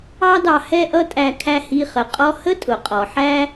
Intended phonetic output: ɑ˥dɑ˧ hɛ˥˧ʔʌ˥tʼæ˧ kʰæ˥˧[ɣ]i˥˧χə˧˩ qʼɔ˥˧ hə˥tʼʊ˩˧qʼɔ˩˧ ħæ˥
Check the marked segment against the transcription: incorrect: h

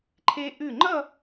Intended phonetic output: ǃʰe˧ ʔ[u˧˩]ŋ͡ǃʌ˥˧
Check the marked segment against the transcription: incorrect: ʉ˧˩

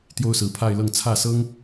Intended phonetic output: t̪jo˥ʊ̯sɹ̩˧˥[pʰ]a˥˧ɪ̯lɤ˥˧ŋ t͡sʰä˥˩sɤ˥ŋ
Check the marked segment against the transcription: correct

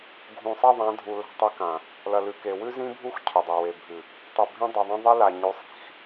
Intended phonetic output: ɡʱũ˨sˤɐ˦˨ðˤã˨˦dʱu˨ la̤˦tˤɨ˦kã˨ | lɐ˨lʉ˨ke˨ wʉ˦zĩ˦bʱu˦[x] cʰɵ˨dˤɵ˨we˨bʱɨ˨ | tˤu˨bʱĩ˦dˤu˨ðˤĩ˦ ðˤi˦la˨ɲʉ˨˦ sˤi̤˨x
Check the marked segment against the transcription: correct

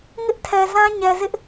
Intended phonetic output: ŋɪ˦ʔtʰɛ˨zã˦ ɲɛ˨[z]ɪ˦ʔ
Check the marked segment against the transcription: correct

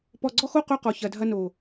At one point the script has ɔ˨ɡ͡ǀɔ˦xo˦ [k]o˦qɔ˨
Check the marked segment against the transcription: incorrect: q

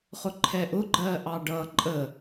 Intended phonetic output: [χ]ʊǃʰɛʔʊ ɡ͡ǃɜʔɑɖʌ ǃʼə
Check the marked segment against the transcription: correct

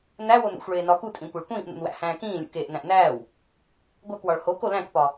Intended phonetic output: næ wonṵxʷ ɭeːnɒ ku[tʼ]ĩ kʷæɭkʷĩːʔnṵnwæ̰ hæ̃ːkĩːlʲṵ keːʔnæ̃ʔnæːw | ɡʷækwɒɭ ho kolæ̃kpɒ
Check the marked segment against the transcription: correct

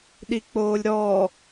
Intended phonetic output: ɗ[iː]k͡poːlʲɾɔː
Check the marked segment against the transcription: incorrect: i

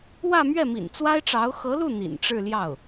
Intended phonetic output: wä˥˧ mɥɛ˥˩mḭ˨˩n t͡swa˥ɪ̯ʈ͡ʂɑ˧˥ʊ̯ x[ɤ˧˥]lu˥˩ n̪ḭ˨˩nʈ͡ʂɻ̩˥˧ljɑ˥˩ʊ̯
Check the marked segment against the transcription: correct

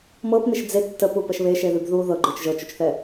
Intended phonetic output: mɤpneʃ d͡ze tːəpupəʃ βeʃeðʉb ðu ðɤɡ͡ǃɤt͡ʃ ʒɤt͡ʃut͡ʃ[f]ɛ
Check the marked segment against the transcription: incorrect: θ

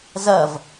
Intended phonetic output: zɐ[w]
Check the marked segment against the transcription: incorrect: v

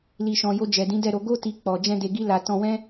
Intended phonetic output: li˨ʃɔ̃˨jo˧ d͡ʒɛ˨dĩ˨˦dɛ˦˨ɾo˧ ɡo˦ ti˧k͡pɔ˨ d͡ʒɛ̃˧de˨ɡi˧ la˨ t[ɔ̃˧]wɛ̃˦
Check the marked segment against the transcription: correct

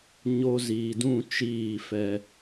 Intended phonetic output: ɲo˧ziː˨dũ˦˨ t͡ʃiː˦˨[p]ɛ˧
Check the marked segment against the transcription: incorrect: f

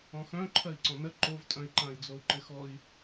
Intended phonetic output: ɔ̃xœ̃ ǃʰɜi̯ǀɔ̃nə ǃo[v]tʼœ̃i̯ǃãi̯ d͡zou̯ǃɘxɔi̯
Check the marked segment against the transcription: correct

